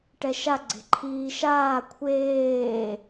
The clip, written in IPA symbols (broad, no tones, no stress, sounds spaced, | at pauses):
ʈ ɛ ʃ a ɡ͡ǀ e̤ ǃʰ iː ʃ aː kʷʰ eː